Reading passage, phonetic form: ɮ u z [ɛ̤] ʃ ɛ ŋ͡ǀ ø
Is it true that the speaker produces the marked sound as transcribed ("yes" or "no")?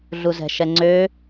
yes